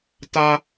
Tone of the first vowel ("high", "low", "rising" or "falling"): high